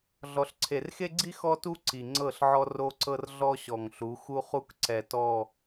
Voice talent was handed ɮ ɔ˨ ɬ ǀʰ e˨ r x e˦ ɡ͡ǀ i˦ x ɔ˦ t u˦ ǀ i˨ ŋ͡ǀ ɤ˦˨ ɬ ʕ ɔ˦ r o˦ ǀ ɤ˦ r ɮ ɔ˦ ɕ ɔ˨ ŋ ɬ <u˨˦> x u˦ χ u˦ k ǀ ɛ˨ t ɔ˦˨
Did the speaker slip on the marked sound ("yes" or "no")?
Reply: no